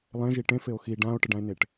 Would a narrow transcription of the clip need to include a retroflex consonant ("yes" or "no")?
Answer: yes